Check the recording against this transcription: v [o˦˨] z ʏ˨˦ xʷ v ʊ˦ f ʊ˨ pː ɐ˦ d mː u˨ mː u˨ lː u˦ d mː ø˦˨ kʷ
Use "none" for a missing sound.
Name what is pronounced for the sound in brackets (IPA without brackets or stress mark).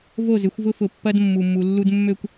o˦˨